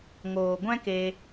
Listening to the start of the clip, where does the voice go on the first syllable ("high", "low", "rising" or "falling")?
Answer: low